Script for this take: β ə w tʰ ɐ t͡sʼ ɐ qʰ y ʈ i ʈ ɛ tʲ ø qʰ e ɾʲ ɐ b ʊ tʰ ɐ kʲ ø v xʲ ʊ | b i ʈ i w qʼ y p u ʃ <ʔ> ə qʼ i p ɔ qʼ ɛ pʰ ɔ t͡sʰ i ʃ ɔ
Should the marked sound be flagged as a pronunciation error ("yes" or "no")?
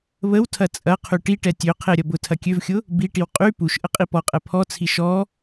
no